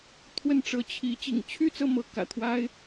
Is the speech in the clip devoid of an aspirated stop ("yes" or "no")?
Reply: no